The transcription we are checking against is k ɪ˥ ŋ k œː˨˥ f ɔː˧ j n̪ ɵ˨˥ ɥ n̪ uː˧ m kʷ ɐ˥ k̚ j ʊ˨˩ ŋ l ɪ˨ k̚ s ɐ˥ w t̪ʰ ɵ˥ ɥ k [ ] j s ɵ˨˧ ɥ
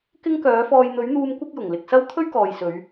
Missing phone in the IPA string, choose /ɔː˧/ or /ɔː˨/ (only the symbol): ɔː˨